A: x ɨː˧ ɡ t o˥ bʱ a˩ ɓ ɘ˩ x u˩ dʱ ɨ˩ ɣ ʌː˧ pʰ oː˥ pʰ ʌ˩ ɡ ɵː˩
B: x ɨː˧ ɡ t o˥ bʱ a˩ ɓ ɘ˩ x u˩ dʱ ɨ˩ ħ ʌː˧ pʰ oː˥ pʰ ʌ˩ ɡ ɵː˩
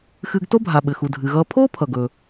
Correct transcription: A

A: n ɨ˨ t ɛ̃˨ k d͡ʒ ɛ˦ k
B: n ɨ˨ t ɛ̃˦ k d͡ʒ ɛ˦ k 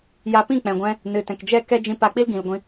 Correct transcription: A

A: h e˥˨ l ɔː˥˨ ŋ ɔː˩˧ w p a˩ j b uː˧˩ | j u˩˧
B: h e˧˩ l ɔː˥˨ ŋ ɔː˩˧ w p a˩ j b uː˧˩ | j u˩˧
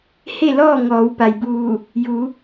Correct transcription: A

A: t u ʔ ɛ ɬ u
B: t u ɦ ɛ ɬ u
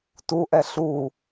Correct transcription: A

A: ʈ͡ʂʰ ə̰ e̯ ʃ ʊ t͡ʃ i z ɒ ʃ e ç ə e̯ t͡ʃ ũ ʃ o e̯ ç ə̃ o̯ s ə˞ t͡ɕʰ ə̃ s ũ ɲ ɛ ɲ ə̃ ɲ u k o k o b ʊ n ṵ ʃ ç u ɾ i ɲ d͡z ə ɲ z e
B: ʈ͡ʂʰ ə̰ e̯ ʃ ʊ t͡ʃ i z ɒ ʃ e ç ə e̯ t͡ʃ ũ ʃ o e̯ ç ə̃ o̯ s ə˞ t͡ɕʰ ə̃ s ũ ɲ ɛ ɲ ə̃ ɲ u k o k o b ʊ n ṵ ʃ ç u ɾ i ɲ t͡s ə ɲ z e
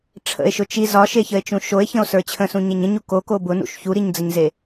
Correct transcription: A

